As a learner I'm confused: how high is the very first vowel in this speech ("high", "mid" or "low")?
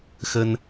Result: mid